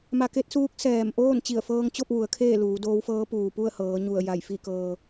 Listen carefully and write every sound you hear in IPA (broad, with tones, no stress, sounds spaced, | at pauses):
m a˧ k e˧˥ t̚ s uː˧˥ k̚ s ɛː˧˩ m ʔ oː˥˨ n t͡ɕ i˧˩ ə̯ f ɤː˧ ŋ t͡ɕ o˥˨ p̚ ʋ u˩˧ ə̯ kʰ eː˥˨ l uː˩˧ d oː˧˥ w f ɤː˧˥ p uː˩ p u˥˨ ə̯ h ɤː˩˧ ɲ u˧˩ ə̯ j a˧˩ j f i˥˨ k ɤː˧